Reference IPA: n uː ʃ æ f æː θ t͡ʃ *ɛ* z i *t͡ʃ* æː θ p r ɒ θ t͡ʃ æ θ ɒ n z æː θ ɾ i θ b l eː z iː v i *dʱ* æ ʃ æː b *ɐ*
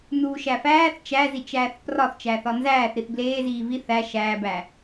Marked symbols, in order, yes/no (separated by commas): no, yes, no, no